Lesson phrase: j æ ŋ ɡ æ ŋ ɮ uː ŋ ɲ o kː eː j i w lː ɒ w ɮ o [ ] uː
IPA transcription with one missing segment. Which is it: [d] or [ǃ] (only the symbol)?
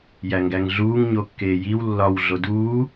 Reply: d